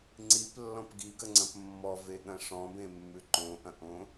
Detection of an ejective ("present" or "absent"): absent